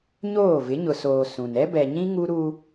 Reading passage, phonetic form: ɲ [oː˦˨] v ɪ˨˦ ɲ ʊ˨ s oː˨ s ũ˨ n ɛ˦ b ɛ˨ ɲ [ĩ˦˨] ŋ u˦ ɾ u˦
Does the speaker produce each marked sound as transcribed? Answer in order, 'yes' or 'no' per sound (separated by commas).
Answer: yes, no